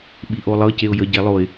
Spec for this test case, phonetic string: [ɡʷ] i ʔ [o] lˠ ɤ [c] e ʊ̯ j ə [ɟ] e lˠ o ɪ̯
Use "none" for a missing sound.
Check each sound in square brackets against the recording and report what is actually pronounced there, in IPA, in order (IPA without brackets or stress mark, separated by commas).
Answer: ɓ, o, c, ɟ